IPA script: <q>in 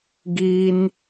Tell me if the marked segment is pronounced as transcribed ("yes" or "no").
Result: no